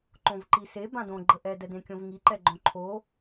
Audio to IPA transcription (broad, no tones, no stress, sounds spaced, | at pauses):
ǃ õ v ǃ i s e b ã d õ ɡ͡ǃ ə ʔ ɛ d ɛ d ẽ kʲ õ v ŋ i ǃ ɛ ɡ͡ǃ õ ǃʰ o